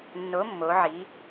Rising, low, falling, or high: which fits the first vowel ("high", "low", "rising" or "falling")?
rising